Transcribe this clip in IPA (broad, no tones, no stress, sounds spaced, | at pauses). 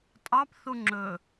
tʼ ɑ p θ u ŋ͡ǁ ɵ